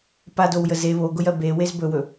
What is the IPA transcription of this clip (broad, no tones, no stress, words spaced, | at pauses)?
padowjə ze βoɡʊjɜ bewez bɵwɵ